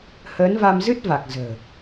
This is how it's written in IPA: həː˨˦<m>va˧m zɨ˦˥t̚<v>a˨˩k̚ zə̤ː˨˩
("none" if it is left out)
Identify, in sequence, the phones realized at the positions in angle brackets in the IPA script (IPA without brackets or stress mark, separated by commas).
n, v